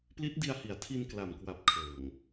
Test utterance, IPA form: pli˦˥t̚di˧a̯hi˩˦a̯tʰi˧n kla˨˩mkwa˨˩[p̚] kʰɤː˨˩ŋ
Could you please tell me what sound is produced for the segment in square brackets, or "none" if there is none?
p̚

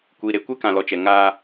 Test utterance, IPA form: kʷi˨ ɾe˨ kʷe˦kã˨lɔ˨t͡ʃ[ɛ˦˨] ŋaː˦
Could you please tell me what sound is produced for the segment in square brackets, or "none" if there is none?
ɛ˨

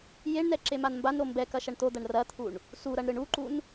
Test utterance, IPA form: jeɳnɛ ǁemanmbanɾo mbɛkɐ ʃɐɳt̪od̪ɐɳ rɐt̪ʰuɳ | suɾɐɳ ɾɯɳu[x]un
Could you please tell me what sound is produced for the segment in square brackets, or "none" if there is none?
ǃ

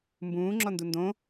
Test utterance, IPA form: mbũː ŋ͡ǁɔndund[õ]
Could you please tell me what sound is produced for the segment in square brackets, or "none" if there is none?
õ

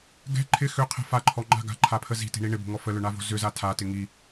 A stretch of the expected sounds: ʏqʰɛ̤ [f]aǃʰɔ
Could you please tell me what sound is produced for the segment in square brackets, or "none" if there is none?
f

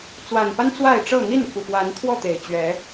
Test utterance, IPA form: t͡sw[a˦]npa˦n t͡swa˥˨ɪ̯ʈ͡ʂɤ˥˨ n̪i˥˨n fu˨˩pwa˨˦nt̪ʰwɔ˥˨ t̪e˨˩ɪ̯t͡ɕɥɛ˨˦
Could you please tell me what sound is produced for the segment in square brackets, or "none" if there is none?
a˨˩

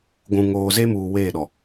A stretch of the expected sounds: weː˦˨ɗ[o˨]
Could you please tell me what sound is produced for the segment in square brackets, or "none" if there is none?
ɔ˨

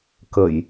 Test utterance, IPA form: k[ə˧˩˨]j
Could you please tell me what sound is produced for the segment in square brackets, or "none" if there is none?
ə˧˩˨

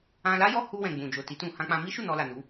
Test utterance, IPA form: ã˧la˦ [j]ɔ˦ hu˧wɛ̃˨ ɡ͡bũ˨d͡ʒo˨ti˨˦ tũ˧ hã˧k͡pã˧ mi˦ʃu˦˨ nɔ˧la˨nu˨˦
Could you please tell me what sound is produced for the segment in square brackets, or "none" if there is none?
j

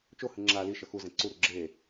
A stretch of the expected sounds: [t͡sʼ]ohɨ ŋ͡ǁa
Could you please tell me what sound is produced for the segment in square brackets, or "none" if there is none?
t͡ʃ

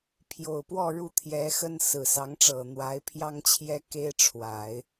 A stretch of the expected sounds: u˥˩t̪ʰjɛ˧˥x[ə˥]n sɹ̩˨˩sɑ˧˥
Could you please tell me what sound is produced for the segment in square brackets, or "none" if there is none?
ə˥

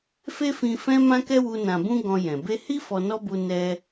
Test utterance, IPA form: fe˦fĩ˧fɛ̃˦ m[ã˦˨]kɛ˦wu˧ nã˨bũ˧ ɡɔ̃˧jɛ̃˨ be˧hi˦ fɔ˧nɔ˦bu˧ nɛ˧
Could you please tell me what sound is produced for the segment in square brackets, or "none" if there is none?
ã˦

